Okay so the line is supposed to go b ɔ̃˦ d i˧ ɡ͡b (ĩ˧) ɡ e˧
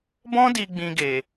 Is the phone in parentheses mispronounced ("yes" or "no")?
no